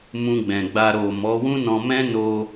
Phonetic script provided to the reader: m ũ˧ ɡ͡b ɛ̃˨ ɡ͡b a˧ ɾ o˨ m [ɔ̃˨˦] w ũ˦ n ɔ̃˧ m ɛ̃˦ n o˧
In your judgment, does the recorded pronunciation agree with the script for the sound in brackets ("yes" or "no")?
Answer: no